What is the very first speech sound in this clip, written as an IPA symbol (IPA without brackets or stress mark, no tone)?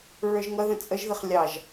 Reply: ɹ